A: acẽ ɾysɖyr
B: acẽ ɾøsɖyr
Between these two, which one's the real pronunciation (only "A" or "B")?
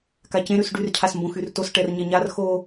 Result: A